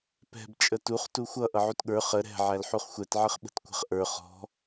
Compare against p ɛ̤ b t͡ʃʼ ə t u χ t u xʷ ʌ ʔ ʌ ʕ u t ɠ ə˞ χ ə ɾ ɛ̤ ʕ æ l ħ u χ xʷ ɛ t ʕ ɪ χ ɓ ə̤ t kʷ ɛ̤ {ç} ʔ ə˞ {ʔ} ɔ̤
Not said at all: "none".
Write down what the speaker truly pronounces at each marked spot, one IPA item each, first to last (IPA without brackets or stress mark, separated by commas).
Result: χ, χ